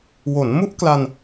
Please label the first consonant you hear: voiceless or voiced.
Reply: voiced